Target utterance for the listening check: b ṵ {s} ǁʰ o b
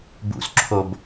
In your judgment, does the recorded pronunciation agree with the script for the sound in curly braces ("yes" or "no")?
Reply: yes